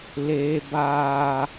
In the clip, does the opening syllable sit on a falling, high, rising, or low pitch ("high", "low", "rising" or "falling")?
high